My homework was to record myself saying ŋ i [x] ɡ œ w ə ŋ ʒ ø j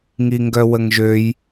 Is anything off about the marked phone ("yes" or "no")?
yes